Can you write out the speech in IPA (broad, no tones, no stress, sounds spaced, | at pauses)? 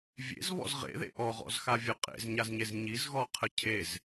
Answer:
vʲ ḛ z β ɔ̰ z ʁ ḛ ð ḛ ʔ ɔ ʁ ɔ̰ z x a vʲ ɔ qʼ ḛ z ɲ a z ɲ e z ɲ i z ɣ ɔ qʰ ə cʰ e z